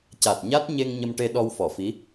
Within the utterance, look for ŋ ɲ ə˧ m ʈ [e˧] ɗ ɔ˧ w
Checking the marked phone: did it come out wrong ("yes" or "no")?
no